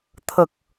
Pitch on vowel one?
low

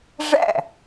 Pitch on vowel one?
falling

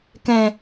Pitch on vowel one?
low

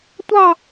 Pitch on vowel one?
falling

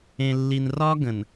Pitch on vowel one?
low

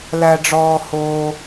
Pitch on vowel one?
low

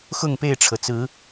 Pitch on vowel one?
falling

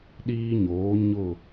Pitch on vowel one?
high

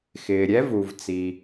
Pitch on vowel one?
low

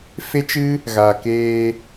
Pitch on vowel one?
high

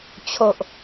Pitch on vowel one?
low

